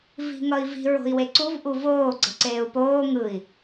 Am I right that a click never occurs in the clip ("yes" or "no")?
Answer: no